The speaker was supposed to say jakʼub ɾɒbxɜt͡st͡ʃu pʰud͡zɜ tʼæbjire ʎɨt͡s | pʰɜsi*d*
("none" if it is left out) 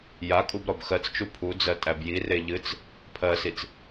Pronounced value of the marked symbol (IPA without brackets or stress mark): t͡s